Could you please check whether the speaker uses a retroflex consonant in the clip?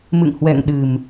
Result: no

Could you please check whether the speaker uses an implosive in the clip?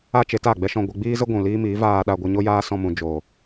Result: yes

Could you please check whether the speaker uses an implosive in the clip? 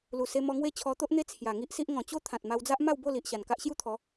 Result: no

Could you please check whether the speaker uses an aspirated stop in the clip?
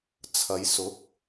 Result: yes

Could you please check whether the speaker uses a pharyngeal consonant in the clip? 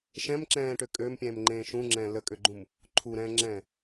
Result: no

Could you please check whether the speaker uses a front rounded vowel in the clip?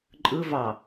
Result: no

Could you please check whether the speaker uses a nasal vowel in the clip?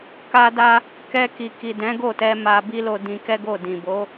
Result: yes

